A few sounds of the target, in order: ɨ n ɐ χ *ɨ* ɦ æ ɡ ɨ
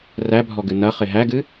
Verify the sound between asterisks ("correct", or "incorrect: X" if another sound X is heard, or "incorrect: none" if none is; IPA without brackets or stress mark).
incorrect: e